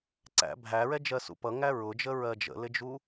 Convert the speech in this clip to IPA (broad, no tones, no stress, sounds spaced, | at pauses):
ǀ æ̰ bʱ æ ɹ ɛ d͡ʒ ɜ s ṵ p ʌ ŋ æ ɹ ʊ d͡ʒ ə ɹ ɜ d͡ʒ ə̰ l ɪ d͡ʒ u